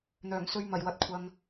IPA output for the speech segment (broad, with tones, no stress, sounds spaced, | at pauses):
n̪ œː˨˩ ŋ s ɵ˧ ɥ m ɐ˨˩ j w ɐ˨ t̚ kʷʰ ɐ˨ ŋ